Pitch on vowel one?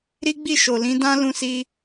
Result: high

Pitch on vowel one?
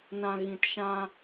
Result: low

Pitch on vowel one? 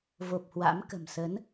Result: low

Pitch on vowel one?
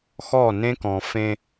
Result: falling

